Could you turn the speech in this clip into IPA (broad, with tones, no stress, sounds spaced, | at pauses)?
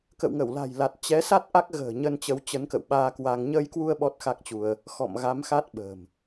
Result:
k ə̰˧˨ w ŋ ə˧˩ w l a̤˨˩ j l a˨˩ t̚ t͡ɕ ɛ˨˦ s a˦˥ t̚ ʔ a˦˥ k̚ ɣ ə̤ː˨˩ ɲ ə˧ n t͡ɕ ə˨˦ w t͡ɕ ə˨˦ n k ə̰˧˨ w ɓ aː˧ k w a˧ ŋ ɲ əː˧ j k w u˧ ə̯ ɓ ɔ˦˥ t̚ x a˦˥ k̚ t͡ɕ u˧ ə̯ | x ɔ̰˧˨ m ɣ a˨˦ m x a˦˥ t̚ ɓ ə̤ː˨˩ m